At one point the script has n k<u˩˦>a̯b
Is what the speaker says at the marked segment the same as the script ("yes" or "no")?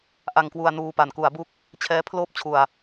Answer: yes